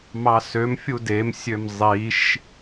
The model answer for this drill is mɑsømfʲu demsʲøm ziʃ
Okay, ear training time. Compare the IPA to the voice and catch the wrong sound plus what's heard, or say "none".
z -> zˤ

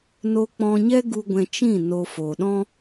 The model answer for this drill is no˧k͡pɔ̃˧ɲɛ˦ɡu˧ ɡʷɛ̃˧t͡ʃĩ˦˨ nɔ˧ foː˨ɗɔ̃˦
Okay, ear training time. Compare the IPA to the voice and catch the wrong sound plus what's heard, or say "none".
ɔ˧ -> o˧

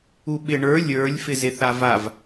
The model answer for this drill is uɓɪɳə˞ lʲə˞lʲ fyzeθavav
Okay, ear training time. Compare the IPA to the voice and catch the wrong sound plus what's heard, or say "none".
y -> ɪ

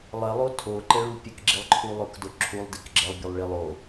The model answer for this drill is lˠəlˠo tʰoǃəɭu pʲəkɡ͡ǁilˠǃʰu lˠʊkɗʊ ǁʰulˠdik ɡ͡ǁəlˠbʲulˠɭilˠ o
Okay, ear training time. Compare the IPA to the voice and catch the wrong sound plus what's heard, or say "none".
ɗ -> d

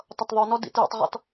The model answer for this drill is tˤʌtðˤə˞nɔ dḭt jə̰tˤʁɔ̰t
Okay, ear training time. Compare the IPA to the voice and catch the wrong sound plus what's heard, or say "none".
none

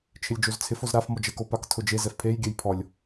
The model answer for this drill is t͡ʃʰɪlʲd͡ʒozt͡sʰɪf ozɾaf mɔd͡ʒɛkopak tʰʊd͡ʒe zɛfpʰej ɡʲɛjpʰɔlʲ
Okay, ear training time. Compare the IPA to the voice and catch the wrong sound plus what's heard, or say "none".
none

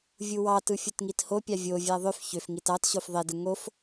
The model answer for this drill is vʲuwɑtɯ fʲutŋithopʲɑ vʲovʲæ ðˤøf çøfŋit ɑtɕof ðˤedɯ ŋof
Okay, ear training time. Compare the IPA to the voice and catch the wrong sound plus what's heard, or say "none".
none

